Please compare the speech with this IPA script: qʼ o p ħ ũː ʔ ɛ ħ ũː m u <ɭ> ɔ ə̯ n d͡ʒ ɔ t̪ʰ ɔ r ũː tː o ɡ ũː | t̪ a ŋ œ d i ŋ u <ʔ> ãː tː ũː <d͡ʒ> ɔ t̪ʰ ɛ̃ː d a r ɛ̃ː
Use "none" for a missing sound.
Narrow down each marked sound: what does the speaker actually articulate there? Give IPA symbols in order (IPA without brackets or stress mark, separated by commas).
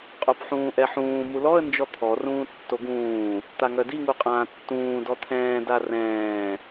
l, qʼ, d